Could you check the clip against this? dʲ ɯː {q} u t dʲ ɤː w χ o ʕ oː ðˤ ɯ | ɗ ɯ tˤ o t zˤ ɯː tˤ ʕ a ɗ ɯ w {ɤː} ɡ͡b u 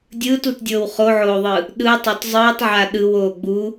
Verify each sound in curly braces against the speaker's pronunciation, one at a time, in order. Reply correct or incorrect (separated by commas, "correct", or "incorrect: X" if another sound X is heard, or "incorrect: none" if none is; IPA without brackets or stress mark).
incorrect: t, incorrect: oː